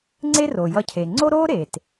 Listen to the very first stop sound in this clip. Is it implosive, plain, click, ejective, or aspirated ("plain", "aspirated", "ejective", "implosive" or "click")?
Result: click